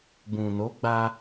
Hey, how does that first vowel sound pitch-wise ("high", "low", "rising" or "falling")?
low